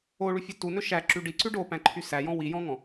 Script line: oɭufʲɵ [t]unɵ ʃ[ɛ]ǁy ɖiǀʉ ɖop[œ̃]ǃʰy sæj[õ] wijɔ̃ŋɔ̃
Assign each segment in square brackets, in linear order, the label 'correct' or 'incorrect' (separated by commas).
correct, incorrect, incorrect, incorrect